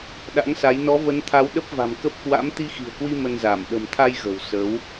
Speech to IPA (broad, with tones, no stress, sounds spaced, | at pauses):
ɗ a̰˧˥ ŋ s a˨˦ j n ɔ˨˦ v ə˨˦ n t̪ʰ a˨˦ w ɗ ə˦˥ p̚ v a̤˨˩ m k ə˦˥ p̚ k w a̰˧˥ m t̪ i˧ x i̤˨˩ ə̯ k w i˧ m ə˧ n z a˧˩ m ɗ ə̤˨˩ m t̪ʰ a˧ j ɣ ə̤˨˩ w s ə˨˦ w